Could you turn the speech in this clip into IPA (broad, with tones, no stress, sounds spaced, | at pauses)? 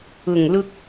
ʊ˨˩ ŋ l ʊ˧ k̚